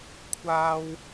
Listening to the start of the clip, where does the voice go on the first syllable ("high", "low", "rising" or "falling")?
high